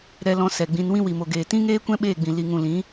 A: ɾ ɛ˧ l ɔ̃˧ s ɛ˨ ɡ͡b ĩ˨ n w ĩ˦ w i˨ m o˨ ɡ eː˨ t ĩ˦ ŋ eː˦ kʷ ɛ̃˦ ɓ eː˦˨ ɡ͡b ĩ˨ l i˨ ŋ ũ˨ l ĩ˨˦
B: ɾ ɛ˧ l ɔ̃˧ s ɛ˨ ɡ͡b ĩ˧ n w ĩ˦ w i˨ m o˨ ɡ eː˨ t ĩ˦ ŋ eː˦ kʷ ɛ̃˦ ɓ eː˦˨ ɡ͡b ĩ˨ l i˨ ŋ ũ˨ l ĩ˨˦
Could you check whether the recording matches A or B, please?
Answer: B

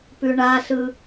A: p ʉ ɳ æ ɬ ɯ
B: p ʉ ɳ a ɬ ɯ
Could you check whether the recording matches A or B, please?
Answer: B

